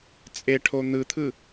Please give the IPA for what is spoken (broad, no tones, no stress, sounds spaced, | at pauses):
t͡sʼ e ʈʰ o n̪ ɯ t̪ʰ ɯ